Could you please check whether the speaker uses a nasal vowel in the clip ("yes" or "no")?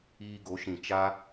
yes